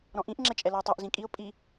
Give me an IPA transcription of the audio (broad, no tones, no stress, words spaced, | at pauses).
ɾɔ̃ʔĩʔ ŋ͡ǁɛt͡ʃʼɛlɔɪ̯tˤoʔ zĩkʼiʊ̯ pʼi